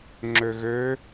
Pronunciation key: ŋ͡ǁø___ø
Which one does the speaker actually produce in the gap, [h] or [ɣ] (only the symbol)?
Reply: ɣ